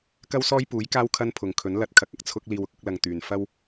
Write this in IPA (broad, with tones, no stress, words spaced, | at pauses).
kɐ˥wsɔː˥jpuː˨˥j kaː˥wkʰɐ˥npʰʊ˨ŋkʰɵ˨˥n lɐ˧t̚kʰɐ˨˥k̚ɐ˨k̚ t͡sʰʊ˥k̚ liː˧wʊ˨k̚ʊ˨˥k̚lɐ˧ŋ t̪yː˨n fɐ˥w